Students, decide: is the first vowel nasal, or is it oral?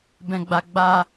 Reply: nasal